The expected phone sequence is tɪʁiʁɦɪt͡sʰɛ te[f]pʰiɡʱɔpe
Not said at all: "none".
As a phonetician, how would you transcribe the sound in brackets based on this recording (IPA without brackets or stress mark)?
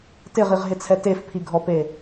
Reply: f